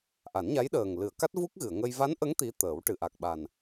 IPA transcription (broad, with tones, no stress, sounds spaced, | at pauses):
ʔ a˨˩˦ n ɲ a˧˥ j ɗ əː˨˩ ŋ l ɨ˨˩˨ ə̯ k a˦˥ t̚ v u˦˥ k̚ ɣ ɨ˨˩˨ ə̯ ŋ ə˧ j v a˧˥ n ʔ ə˧˥ ŋ t̪ i˧˥ t̪ əː˨˩˦ w ʈ ɨ˨˩˨ ʔ a˨˩ k̚ ɓ a˨˩ n